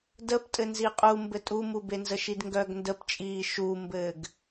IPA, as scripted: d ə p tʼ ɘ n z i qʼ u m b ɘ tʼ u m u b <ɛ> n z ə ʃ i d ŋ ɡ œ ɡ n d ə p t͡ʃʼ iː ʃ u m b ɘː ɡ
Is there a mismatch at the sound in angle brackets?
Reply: yes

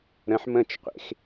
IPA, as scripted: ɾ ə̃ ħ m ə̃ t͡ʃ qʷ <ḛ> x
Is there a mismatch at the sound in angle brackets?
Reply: no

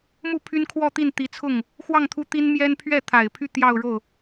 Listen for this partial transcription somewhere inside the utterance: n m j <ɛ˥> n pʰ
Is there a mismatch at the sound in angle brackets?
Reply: no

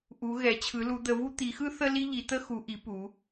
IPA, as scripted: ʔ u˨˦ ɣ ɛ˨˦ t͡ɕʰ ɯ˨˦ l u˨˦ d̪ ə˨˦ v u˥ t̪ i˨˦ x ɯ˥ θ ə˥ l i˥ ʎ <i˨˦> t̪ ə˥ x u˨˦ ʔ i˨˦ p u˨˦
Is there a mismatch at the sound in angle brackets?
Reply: no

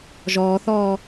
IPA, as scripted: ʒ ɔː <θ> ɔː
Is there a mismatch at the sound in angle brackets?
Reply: no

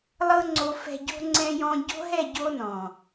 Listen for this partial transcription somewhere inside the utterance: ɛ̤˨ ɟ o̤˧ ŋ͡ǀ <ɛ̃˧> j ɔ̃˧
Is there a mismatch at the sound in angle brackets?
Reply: no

